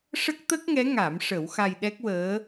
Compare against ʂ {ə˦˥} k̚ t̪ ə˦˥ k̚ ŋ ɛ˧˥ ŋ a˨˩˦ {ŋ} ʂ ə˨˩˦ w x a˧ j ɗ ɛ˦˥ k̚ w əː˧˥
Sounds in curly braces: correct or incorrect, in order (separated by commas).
correct, incorrect